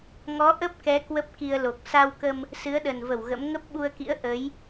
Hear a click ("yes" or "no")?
no